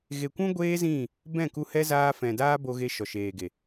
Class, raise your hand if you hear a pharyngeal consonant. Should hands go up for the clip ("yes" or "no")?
no